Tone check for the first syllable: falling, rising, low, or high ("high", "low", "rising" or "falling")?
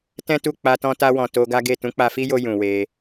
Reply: high